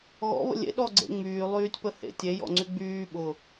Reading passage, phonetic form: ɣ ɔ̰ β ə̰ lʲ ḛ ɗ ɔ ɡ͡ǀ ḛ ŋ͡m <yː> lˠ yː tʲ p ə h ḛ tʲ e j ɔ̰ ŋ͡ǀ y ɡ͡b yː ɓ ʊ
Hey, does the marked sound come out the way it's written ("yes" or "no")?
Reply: yes